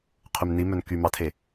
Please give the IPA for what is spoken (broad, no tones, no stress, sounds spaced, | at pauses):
qʰ ʉ m n i m œ n k y m ɑ tʰ e